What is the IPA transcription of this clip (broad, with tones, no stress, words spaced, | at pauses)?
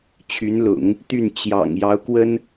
t͡ɕʰy˧˥nlʊ̰˨˩˦ŋ | t̪y˥˩n t͡ɕjɑ̰˨˩ŋ jɑ˧˥ʊ̯kwə˥n